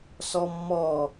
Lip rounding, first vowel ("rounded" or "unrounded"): rounded